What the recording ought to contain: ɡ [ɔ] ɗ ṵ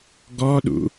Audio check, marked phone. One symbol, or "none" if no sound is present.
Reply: ɔ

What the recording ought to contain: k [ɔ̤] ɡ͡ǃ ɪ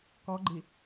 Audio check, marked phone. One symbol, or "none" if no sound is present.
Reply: ɔ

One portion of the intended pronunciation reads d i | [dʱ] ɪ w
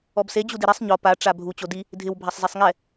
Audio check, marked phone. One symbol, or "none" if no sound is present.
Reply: dʱ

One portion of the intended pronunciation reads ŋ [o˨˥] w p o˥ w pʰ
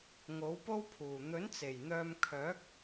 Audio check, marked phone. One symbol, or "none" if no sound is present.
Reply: o˨˥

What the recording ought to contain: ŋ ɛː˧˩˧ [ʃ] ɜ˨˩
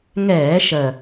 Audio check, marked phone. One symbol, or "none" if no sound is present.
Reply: ʃ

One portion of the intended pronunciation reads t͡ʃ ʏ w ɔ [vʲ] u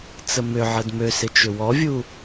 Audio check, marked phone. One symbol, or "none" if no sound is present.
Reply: vʲ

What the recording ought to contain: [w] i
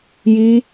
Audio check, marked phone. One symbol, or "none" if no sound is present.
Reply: j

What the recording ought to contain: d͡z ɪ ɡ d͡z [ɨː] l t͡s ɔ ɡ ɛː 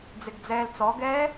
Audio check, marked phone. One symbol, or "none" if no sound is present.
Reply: ɛː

